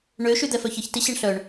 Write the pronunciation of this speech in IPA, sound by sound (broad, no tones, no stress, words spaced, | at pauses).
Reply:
ɳø ʃyd̪ɛfœçəç tiɕɛɳɬœɳ